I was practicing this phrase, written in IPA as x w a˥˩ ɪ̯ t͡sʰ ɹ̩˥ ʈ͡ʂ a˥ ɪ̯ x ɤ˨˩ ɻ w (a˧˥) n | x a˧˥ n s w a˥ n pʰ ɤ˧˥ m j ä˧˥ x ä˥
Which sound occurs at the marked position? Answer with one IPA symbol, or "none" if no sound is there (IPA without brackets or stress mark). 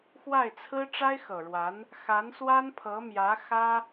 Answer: a˧˥